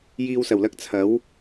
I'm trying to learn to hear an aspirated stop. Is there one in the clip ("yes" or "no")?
yes